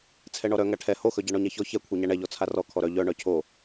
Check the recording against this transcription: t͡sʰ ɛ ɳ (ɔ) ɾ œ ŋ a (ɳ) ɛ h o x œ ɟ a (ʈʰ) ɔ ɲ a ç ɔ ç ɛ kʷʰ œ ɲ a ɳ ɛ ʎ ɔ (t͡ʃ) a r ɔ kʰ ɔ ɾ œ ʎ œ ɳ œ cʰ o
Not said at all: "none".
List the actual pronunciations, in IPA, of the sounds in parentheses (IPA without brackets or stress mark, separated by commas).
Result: ɔ, ʈʰ, ɳ, t͡sʰ